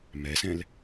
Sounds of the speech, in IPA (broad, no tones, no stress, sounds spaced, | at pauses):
m ɛ s ɛ̃ l